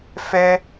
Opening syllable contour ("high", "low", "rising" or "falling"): high